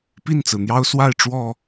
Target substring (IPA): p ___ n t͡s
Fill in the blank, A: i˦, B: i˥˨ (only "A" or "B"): B